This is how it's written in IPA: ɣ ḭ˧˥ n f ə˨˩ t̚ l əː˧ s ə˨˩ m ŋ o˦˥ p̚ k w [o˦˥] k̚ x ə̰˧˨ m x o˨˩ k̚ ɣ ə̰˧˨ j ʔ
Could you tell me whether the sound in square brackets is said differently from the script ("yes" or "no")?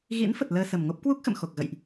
yes